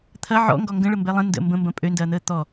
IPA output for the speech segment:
t̪ʰ ɐ ʕ ɔ̰ ŋ ɡ ɔ ŋ ɡ ə̃ ɭ ə m b ɛ lˠ ə̃ n d ə̰ m b ə̃ m b ɐ̃ pʼ ø n d ɐː n̪ əː t̪ ɔ

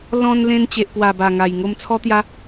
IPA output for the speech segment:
l ɔ̃˧ n l ẽ˧ n t͡ɕ e˨ ʔ k w a˨˩ b a˨˩ ŋ a˨˩ j ŋ o˧ m t͡sʰ ɔ˦ t̪ j a˦

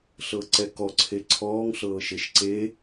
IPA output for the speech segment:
ɬ ɤ ǀ ɛ k ɔ ǀʰ e ǀʰ ɔː ŋ ɬ ɤː ʃ e ʃ ǀ e

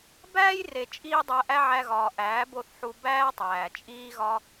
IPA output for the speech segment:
b æː˦ j r e˨ t͡ʃʼ iː˦ dˤ æ˧ ʔ æ˦ ʕ æ˧ ɣ ɒː˨ ʔ æː˨˦ b o˦˨ θ ħ u˧ b æː˦ tˤ æː˨ t͡ʃʼ iː˦ ɣ ɒ˦

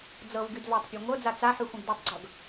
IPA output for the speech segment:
d͡z ɤ v ɡ y d v a tˤ pʲ a ŋʷ ɤ d͡z a t͡s a ħ y xʷ ə̃ ɡ d y tˤ ɡ͡ǀ ɤ ɡ

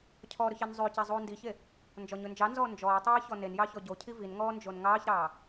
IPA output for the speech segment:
cʰ ɔ ɾ ɵ ç ɛ n zˤ ʉ c ɛ zˤ uː n d i ç e | n d͡ʒ ɔ ɲ ɵ n d͡ʒ ɑ n z ɔː n d͡ʒ ɔː tˤ uː j ç ɔ n e n j ɑ ç ɔ ɟ o cʰ i v i n ŋ ɔː n d͡ʒ o n ŋ ɑː ç ɾ ɑː

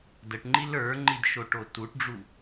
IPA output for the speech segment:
d ə ʈ ŋ͡ǃ i l ə˞ ŋ͡ǃ i d ʃ o ʈ o t u ʈ ɖ͡ʐ u

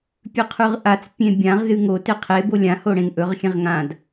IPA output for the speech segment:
pʲ ʉ qʰ ʉ ʁ ʔ a t͡s pʲ ẽ bʲ ã ʁ z ɨ ŋ o t e qʰ e b o lʲ ã h o ɽ ẽ ŋ ʔ ɵ ʁ xʲ ẽ ʁ ŋ ã d

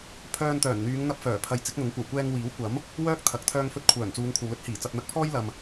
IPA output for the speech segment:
pʰ œː˧ n t̪ œː˨˩ n n̪ yː˨˧ ŋ n̪ ɐ˧ p̚ f œː˨˩ pʰ ɐ˨˧ j t͡s ɪ˨˥ k̚ n̪ ʊ˨˥ ŋ kʷ ɐ˨˩ w kʷ ɛː˧ ŋ w iː˨˥ w kʷ ɐ˨˥ m | w œː˥ k̚ t̪ʰ ɐ˨ k̚ t̪ʰ œː˧ ŋ f ɵ˧ t̚ kʷʰ œː˨˩ n t͡s uː˨˧ ŋ kʷʰ ɐ˨ w l ɵ˥ t̚ h iː˨˩ t͡s ɐ˨ p̚ n̪ ɐ˧ k̚ pʰ ɔː˥ j l ɐ˨ m

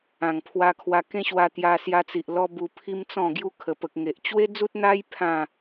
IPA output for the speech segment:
ã˨˩ ŋ pʰ w a˧ kʰ w a˧ k ẽ˦ ɕ w a˧ t̪ j a˧ s j a˧ t͡s i˨ ʔ l ɔ˦ b u˧ pʰ i˦ m t͡s ɔ̃˥˧ ɡ j u˧ kʰ ə˨˩ p ə˨ k̚ ŋ e˨ ʔ t͡ɕ w e˦ d͡z u˦ t̚ n̪ a˦ j pʰ ã˥˧

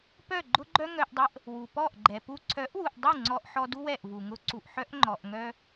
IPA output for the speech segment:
p œ˦˨ ɡ͡ǃ ʊ˦ ɡ͡ǃ œ˦ ŋ œ˧ ʔ dˤ ɛ˦ ʔ | w u˨ p ɔ˦˨ ʔ ɡ͡ǃ ɛ˨ p u˧ ǀʰ œ˨˦ ʔ w u˨ ʔ dˤ u˦˨ ŋ͡ǀ ɔ˧ ʔ ħ ɔ˧ d u˦ w ɛ˦˨ ʔ v u˨ ŋ ʊ˧ ǀ u˨ ʔ ħ œ˦ ʔ ŋ͡ǃ ɔ˨ ʔ ŋ œ˧

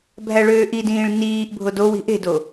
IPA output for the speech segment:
bʱ æ ɭ øː ʔ i d ĩː ɭ n iː ʔ bʱ o d o w i̤ ʔ e̤ d o

